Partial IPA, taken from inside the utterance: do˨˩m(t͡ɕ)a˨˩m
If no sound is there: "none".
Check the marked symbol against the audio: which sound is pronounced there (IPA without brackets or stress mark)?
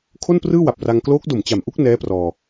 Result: t͡ɕ